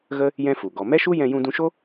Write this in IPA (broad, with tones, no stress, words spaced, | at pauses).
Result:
ɣə˦ | jɛ̃˦fu˨ ɡɔ˨mɛ˦ʃu˦ jɛ̃˧jũ˧dũ˧ʃo˦